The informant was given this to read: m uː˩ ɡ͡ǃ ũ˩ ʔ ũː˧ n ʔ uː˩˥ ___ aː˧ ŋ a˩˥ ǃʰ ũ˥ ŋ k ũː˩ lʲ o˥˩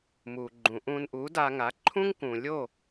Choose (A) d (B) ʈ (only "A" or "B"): A